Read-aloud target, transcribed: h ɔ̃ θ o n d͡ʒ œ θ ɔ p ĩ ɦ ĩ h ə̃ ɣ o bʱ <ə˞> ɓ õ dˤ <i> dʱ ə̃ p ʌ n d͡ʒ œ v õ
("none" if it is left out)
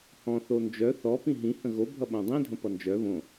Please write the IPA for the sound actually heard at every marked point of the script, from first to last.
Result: ʌ, ĩ

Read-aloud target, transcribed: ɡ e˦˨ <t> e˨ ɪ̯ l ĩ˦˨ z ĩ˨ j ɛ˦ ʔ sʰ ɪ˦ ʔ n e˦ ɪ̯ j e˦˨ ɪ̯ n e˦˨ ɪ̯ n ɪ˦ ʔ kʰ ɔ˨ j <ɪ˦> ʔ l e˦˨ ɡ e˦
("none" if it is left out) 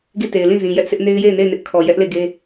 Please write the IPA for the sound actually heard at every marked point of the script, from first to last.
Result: t, ɛ˦

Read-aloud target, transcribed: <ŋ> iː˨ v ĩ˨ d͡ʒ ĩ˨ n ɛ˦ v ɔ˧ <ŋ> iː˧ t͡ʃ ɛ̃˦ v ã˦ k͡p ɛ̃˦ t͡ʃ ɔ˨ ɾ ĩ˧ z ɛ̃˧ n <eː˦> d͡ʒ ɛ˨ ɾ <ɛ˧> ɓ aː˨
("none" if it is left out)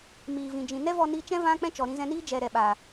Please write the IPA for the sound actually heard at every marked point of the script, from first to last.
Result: m, n, iː˦, ɛ˨

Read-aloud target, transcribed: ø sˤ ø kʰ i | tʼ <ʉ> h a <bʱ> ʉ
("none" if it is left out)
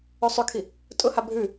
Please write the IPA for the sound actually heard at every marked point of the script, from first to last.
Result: ʊ, bʱ

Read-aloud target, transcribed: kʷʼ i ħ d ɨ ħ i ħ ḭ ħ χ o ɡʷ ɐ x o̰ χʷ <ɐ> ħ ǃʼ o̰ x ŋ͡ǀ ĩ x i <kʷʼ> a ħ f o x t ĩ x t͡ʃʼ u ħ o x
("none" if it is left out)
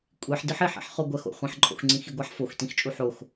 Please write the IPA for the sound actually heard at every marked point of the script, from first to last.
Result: ɐ̃, ɡʷ

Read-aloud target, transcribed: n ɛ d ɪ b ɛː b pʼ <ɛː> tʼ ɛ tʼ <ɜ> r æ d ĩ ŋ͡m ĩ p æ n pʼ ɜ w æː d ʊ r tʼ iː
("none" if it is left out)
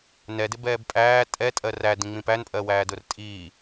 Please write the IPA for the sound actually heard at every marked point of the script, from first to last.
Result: æː, ɜ

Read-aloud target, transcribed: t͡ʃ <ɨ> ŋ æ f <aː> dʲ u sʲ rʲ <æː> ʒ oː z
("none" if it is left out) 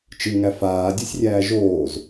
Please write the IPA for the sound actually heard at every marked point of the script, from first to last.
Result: ɨ, aː, æː

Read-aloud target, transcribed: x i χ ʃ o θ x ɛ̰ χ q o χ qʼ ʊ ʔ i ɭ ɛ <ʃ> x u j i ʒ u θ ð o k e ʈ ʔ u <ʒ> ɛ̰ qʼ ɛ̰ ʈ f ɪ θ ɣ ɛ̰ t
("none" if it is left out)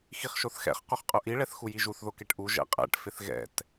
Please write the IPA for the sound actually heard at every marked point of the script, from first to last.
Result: θ, ʒ

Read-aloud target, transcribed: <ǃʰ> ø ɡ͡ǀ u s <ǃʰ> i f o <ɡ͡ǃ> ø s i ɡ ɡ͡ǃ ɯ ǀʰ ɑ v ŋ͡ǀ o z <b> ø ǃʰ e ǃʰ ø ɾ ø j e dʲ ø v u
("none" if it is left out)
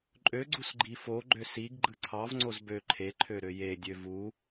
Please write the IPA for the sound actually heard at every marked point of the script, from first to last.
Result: ǃʼ, ɡ͡ǃ, ɡ͡ǃ, b

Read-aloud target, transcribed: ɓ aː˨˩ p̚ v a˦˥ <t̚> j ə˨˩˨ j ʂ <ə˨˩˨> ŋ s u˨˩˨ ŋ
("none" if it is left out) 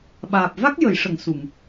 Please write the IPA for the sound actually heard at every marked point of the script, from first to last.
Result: k̚, ə˨˩˨

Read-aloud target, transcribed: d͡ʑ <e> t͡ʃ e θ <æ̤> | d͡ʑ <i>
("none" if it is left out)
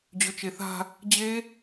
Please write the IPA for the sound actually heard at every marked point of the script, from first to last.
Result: ø, a̤, e

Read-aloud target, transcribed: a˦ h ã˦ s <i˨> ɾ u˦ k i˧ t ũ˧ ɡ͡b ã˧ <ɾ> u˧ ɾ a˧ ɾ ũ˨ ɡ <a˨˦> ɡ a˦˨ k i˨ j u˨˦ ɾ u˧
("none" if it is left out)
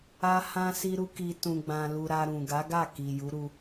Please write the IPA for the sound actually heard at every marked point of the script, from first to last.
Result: i˦, l, a˨˦

